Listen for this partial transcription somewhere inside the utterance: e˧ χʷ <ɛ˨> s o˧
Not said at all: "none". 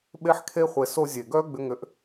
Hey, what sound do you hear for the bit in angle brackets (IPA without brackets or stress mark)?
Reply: e˨